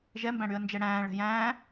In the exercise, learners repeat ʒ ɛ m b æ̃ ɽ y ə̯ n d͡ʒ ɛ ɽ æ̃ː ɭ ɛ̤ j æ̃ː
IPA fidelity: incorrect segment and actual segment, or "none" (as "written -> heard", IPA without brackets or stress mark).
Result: none